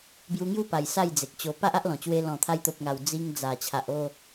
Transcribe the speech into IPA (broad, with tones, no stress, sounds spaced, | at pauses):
b j u˧ ŋ j u˥˧ p a˨˩ j s a˥˧ j d͡z e˨ k̚ t͡ɕ o˧ p a˦ ʔ a˦ ʔ l ɔ̃˨˩ t͡ɕ w e˧ l ɔ̃˨˩ t̪ʰ a˧ j t̪ o˨ p̚ ŋ a˨˩ w d͡z i˧ ŋ d͡z a˨˩ t͡ɕʰ a˨ ʔ o˥˧